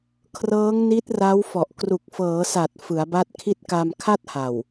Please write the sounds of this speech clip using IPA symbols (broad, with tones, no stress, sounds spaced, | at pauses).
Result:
kʰ r ɤː˦˥ ŋ n i˦˥ t̚ r a˦˥ w f ɔ˨˩ ʔ k r u˨˩ k̚ f ɤː˩˦ s a˨˩ t̚ f ɯ˩˦ a̯ b a˦˥ t̚ kʰ i˥˩ t̚ k a˧ m kʰ a˥˩ t̚ h a˨˩ w